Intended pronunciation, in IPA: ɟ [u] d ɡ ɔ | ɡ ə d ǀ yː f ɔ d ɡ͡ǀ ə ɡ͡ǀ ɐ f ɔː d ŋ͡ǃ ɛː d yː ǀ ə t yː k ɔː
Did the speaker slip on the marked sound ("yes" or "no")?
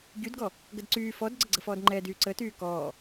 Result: yes